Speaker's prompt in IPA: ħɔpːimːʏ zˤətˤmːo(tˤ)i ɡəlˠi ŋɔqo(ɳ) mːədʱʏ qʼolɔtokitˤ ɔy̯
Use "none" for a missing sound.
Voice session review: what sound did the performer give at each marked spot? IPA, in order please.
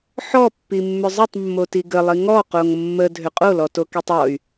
t, ŋ

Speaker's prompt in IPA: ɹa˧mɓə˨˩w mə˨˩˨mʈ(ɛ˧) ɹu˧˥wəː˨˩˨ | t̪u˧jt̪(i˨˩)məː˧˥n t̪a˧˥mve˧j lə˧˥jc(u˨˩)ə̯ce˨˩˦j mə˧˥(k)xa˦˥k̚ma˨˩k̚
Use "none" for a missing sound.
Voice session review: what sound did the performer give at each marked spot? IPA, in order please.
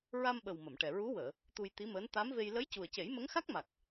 ɛ˨˩, i˧˥, u˨˩, ŋ

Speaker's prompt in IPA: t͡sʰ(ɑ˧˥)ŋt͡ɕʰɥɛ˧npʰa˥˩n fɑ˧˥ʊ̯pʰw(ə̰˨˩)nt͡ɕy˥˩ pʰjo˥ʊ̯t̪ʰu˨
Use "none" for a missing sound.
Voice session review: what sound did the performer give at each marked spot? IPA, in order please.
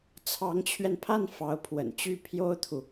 ɑ˧˥, ə̰˨˩

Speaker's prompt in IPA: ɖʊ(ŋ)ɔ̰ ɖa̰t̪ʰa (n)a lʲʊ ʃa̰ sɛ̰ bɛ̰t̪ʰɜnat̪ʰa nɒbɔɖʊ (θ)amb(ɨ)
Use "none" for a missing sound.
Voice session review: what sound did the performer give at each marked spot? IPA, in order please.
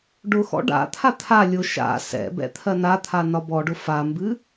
x, t̪ʰ, f, ɨ

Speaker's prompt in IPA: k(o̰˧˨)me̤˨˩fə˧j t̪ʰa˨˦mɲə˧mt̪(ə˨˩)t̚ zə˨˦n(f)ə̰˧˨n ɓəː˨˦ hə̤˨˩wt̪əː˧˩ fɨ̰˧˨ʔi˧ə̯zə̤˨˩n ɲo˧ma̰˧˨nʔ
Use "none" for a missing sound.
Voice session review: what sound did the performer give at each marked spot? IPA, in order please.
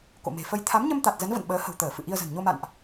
o̰˧˨, a˨˩, v

